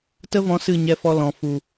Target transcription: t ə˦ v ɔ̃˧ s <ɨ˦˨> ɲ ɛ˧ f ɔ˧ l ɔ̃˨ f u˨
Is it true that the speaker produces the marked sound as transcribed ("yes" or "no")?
yes